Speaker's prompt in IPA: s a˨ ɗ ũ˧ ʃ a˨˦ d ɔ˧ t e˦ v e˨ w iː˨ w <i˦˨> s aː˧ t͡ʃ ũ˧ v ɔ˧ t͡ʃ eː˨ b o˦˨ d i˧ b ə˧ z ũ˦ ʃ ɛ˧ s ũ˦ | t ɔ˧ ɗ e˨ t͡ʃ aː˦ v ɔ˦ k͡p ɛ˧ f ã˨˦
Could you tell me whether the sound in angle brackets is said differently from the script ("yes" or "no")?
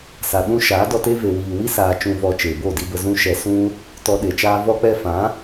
yes